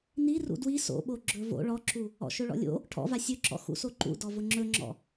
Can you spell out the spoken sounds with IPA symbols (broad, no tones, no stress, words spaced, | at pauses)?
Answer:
ni rṵdwi so̰ɓo ɡ͡ǁɵvo̰ ɭɔǁu | ɔ̰ʃɵɭɔ̰lʲo̰ | ʈʰɔ̰va sʲɵǁɔ̰ xṵsoǃṵ dɔvʊŋ͡ǁɵŋ͡ǁɔ̰